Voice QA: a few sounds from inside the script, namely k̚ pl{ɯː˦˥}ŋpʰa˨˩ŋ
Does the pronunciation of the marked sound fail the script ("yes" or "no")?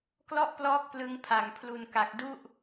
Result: yes